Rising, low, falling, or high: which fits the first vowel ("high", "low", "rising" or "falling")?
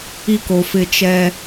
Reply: high